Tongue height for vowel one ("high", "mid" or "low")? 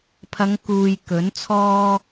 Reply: low